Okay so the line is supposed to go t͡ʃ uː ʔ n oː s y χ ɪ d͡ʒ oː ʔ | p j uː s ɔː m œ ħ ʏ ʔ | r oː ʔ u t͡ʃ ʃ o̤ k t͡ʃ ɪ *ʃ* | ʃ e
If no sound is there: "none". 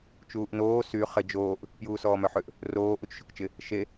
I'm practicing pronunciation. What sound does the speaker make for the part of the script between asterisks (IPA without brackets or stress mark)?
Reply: none